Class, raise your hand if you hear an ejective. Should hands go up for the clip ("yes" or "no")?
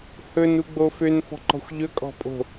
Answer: yes